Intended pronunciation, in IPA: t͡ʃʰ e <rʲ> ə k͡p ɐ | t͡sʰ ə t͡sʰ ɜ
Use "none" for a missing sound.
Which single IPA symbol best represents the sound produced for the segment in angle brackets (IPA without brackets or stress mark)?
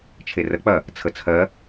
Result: r